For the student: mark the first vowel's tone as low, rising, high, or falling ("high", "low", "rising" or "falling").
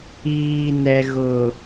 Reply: low